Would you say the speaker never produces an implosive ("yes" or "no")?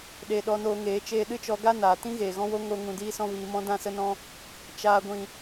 no